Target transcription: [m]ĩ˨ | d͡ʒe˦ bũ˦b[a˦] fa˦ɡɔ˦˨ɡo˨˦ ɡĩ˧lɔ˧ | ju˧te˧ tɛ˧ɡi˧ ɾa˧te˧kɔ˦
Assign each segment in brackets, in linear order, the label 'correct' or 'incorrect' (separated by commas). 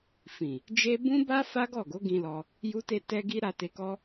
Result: incorrect, correct